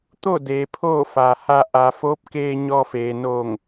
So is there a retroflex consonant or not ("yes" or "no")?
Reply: no